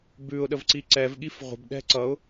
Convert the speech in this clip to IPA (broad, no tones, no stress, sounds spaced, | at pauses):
b ʉ ʊ̯ ɗ ə v ǀ i ǀ ɛ v ɠ i f ʁʷ ə̤ b ɗ ɛ̤ ǀ ʌ ʊ̯